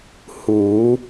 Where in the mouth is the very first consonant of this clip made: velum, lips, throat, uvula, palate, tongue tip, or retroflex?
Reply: throat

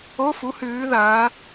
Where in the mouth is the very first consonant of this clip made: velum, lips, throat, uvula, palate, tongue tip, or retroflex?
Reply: lips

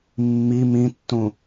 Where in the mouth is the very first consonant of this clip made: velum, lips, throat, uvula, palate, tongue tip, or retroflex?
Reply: lips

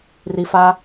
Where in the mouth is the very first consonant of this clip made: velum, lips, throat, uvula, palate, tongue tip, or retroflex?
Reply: tongue tip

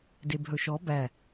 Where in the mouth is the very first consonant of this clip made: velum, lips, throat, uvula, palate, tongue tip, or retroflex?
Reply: tongue tip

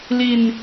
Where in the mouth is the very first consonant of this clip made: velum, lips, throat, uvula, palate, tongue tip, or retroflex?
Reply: tongue tip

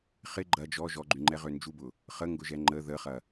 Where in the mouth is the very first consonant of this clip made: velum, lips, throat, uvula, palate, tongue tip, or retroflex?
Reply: uvula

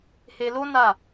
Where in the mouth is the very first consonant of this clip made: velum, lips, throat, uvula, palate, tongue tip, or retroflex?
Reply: throat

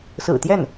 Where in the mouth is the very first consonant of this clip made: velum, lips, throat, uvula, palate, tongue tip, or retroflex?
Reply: tongue tip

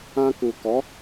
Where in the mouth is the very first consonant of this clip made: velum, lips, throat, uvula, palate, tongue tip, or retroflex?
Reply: velum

